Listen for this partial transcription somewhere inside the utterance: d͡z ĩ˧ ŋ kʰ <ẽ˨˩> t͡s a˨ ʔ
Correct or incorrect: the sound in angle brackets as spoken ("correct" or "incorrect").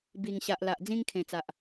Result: correct